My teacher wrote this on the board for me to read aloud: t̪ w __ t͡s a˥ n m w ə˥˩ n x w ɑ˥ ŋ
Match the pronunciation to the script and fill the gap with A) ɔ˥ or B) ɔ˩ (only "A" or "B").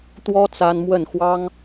A